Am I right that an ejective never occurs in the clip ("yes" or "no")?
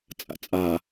no